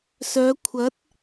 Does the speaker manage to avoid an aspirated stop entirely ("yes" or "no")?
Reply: no